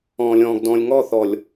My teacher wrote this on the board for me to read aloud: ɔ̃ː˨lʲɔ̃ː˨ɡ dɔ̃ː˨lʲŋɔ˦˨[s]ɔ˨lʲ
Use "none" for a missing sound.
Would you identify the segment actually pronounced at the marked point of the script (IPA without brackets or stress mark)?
θ